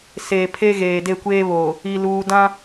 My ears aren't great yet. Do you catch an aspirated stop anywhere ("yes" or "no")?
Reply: yes